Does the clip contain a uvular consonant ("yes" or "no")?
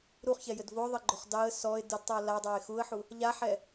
yes